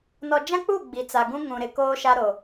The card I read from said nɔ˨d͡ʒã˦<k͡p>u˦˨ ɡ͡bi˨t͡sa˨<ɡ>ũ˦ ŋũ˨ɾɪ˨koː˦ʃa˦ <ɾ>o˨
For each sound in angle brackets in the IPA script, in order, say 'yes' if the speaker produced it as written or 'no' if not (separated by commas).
yes, yes, yes